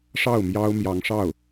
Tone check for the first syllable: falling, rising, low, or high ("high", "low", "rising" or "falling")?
falling